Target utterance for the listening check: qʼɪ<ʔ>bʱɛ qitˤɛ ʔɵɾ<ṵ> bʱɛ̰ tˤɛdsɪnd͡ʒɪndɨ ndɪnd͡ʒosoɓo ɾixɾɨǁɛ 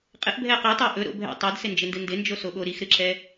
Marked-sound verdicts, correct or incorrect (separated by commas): correct, incorrect